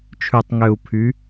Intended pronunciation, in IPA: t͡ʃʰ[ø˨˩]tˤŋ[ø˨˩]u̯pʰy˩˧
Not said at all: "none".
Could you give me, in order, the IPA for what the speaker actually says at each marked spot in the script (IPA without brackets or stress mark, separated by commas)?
ʉ˨˩, ø˨˩